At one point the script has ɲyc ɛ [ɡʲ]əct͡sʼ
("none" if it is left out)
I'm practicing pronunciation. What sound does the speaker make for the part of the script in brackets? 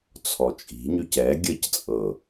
ɡʲ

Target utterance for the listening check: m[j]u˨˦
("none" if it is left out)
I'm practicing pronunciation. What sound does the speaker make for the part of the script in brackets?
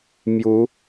j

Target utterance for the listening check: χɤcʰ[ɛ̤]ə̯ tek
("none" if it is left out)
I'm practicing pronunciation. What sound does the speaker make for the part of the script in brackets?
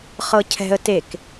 ɛ̤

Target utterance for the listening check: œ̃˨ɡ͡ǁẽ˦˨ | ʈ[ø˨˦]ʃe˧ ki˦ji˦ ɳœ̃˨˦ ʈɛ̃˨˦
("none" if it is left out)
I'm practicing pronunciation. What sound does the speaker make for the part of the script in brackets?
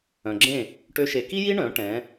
ø˦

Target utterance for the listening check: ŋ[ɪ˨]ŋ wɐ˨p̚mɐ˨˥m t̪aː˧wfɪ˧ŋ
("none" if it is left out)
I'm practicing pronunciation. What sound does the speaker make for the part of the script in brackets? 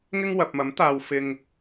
ɪ˥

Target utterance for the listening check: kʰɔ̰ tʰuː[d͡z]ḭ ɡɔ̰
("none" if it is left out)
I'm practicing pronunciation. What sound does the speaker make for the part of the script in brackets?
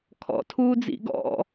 d͡z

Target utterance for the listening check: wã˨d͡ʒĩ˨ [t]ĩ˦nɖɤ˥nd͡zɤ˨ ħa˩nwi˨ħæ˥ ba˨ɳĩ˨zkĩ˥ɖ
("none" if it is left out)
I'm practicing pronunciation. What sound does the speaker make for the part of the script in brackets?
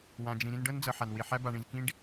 ɾ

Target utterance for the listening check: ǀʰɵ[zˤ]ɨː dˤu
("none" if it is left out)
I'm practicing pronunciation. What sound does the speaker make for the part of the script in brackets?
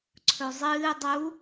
zˤ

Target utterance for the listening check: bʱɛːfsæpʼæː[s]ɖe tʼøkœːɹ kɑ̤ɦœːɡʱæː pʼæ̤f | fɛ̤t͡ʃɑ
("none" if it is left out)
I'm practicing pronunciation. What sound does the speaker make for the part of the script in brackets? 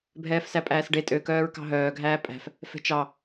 s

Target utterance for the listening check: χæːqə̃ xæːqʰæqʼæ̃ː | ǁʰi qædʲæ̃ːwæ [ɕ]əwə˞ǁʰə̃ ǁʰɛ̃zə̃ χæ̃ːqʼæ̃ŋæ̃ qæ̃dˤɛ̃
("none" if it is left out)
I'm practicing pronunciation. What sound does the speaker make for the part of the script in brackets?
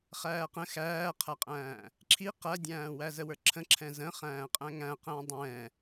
z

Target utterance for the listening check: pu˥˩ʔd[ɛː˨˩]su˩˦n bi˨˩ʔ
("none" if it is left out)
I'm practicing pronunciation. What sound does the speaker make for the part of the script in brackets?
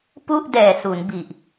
ɛː˨˩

